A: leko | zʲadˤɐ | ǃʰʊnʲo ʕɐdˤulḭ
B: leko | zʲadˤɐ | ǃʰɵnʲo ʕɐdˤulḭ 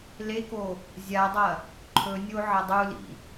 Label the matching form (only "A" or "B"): B